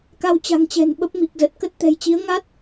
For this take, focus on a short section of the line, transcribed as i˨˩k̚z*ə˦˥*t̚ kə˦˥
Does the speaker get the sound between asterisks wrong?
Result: yes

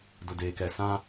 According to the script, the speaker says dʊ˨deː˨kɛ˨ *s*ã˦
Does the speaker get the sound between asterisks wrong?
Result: no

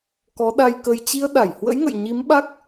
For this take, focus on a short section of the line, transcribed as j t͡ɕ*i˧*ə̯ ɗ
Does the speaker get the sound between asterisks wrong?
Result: no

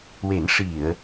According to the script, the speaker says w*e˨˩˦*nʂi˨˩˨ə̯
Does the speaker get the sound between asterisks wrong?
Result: no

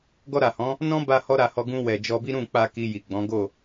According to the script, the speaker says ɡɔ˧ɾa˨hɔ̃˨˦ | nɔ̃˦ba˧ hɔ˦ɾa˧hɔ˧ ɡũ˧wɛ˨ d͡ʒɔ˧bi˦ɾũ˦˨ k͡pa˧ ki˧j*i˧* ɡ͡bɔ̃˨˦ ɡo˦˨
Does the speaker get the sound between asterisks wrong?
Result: yes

